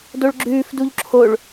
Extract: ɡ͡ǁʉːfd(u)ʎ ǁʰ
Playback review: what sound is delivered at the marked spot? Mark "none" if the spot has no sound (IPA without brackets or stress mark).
u